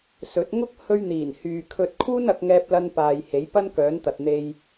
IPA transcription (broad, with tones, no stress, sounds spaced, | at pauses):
s ɵ˨˥ t̚ ŋ ʊ˥ k̚ h ɵ˧ ɥ n̪ iː˨˩ n h yː˨ kʰ ɵ˧ t̚ kʰ uː˥ n ɐ˨˥ k̚ ŋ ɛː˧ p̚ l ɐ˧ n p aː˨ j h e˨˥ j p ɐ˥ n k œː˨˥ n t̪ ɐ˨ t̚ n̪ e˧ j